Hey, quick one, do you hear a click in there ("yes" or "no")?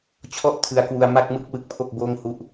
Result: no